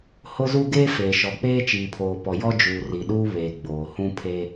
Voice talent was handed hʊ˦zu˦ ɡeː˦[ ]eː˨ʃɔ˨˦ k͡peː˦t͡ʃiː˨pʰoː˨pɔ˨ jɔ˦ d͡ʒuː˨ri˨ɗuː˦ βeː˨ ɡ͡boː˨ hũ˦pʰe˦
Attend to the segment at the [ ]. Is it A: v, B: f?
B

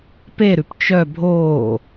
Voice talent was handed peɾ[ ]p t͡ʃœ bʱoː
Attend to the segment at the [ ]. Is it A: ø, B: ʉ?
B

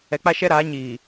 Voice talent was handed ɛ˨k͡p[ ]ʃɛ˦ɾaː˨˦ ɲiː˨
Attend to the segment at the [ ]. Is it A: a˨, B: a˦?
B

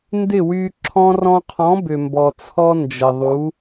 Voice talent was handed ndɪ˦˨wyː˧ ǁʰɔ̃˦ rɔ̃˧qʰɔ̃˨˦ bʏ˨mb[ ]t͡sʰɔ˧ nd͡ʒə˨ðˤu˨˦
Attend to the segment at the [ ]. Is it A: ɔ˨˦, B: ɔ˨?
B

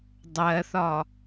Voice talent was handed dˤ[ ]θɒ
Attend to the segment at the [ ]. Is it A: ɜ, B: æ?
A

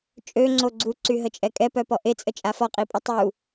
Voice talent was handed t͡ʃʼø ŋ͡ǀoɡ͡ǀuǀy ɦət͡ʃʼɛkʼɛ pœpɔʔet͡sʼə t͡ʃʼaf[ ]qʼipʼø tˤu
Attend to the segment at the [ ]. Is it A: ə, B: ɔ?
B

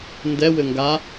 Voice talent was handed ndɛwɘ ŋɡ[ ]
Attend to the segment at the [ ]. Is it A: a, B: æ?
A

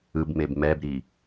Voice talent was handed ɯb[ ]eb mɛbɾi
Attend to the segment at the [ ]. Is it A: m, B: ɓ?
A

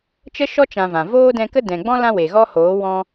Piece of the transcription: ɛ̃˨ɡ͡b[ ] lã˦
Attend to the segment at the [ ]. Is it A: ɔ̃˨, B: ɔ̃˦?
B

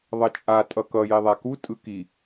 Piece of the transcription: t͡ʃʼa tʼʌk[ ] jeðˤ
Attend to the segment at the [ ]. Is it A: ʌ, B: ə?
A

